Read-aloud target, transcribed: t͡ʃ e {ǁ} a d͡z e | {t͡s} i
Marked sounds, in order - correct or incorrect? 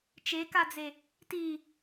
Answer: incorrect: k, incorrect: t

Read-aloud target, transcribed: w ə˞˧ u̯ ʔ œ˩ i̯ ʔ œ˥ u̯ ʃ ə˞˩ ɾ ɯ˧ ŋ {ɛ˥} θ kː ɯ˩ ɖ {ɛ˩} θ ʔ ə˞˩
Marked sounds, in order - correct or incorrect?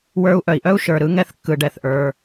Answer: incorrect: ɛ˧, correct

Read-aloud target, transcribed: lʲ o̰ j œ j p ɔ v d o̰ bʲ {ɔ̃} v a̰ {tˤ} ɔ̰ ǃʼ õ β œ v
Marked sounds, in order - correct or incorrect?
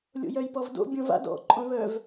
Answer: incorrect: õ, incorrect: d

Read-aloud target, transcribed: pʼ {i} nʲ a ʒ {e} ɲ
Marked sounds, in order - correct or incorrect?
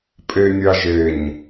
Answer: incorrect: e, correct

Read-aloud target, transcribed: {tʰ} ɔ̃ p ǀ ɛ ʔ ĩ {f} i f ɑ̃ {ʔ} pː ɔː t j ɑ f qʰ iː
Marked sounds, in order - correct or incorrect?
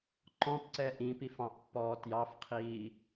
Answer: incorrect: ǃ, incorrect: p, correct

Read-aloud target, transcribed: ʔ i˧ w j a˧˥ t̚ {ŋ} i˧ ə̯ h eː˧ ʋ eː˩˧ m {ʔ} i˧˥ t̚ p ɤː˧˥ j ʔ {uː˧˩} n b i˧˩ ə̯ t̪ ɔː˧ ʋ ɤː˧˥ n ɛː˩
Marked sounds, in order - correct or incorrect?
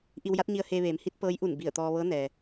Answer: incorrect: ɲ, incorrect: h, incorrect: u˧˩

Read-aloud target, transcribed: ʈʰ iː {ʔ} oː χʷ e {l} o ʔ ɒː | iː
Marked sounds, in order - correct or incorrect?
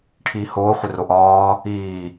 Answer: incorrect: h, incorrect: r

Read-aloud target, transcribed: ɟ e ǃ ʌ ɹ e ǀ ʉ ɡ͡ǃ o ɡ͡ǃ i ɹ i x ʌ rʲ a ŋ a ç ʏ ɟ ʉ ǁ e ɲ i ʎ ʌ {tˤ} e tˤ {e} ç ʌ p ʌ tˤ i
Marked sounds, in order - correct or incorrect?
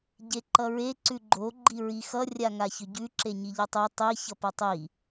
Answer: correct, incorrect: i

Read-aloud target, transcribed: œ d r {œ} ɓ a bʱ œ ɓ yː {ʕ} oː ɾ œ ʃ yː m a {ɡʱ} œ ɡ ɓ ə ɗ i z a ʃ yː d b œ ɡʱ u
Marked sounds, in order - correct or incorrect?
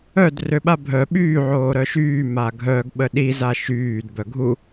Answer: incorrect: ø, correct, correct

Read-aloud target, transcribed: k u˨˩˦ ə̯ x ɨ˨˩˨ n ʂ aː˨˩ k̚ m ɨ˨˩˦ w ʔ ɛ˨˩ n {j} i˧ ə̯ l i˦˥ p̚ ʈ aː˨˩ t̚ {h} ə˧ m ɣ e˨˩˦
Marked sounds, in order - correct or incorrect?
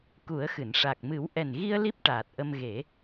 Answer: incorrect: ɣ, incorrect: ʔ

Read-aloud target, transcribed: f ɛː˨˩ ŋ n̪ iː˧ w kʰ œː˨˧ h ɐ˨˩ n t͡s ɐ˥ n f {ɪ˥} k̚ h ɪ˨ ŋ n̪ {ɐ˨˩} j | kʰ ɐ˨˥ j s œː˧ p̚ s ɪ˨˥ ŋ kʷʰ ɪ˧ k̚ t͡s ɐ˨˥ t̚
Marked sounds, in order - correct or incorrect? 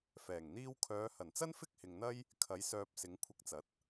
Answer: correct, incorrect: ɐ˥

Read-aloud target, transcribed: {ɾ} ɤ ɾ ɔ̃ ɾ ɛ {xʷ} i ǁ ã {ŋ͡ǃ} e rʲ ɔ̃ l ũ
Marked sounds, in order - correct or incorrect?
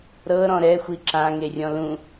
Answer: correct, correct, incorrect: ŋ

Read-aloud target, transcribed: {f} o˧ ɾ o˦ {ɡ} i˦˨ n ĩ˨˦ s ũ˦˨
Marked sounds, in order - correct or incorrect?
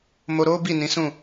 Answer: incorrect: m, incorrect: b

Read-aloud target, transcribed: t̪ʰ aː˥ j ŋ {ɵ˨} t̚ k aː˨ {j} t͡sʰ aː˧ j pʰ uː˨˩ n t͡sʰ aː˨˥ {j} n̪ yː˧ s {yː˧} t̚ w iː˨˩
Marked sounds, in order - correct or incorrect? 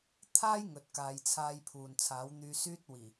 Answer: correct, correct, incorrect: w, incorrect: yː˥

